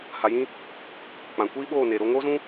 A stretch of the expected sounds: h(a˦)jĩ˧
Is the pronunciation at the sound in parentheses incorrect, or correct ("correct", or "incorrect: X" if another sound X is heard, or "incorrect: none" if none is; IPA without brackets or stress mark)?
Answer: incorrect: a˨